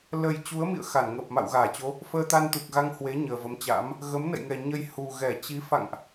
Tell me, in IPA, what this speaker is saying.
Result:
l ə˨˩ j t͡ɕ u˨˦ ə̯ m ḭ˧˨ ə̯ x a˧˩ n ŋ əː˨˩ p̚ m a̰˧˨ w ɣ aː˧˩ t͡ɕ o˨˦ | f əː˧ t̪ a˧ n t̪ u˨˩ k̚ ɣ a˧ ŋ h w e˨˦ ɲ əː˨˩ v ə˨˦ m t͡ɕ a̰ː˧˥ m | ɣ ə˨˦ m n ə̰˧˨ j ŋ ɛ˨˩ ɲ ə˧ j h u˨˩ ɣ ɛ˧˩ t͡ɕ i˨˦ f a̰˧˨ ŋ ʔ

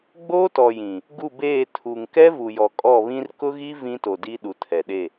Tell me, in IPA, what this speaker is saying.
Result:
ɡ͡b oː˦ t ɔ˨ j ĩ˨ | ɡ u˦˨ b eː˦˨ tʰ u˨ ŋ k ɛ˦ v u˨ j ɔ˨ kʼ ɔ˦˨ β ĩ˦ r k ʊ˦ ɣ i˦ v ĩ˦ t o˨ d i˦ ɗ u˨ tʰ ɛ˨ ɗ e˦˨

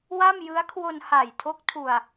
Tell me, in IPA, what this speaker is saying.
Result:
w a˥˩ m j ɯ˦˥ a̯ kʰ w o˧ n h a˨˩ j tʰ o˦˥ k̚ tʰ u˧ a̯

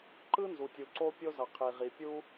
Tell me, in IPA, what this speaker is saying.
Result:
ǃ ɯ˥ n z u˩ tʲ u˩ ǀ o˥ pʲ o˥ z ʌ˩ qʰ i˩ ʁ i˩ pʲ u˥

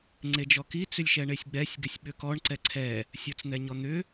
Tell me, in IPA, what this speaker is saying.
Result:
ŋ͡ǀ e d͡ʒ ɔ k i t͡s ʏ lʲ ʃ ɛ ɳ e sʲ ɡ͡b ɛ sʲ ɡ ʏ sʲ ɓ ʏ k ɔ ɳ ǀ ɛ ǀʰ ɛ | sʲ ɔ t͡s n̪ ɛ ɲ ɔ n̪ ʏ

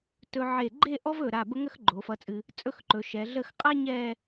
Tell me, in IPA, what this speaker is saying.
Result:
t ɵ˧ ʕ e˧˩ ɡ͡ǃ e˥˧ ʔ ɔ˥ v ɵ˧˩ ɾ a˧˩ b ə˥ ŋ ə˥ x ɡ͡ǃ o˩˧ f ʌ˧ t͡sʼ ɨ˧ | t͡sʼ ɵ˥ x ǃ ɵ˩˧ ʃ ɛ˩˧ ɮ ə˥˧ x qʼ a˥ ɲ ɛ˥˧

